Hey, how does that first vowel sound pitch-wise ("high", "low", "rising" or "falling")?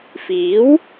rising